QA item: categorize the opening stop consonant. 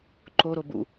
click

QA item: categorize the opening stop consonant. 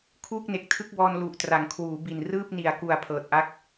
aspirated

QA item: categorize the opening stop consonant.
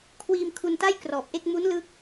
aspirated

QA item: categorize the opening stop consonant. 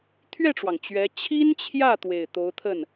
aspirated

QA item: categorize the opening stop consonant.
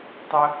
plain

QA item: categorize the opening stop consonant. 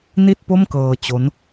plain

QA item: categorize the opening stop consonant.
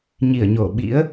implosive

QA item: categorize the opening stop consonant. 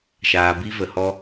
plain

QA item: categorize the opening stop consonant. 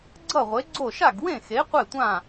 click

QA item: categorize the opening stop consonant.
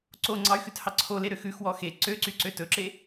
click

